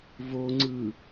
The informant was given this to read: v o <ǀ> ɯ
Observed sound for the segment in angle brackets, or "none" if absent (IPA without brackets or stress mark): ŋ͡ǀ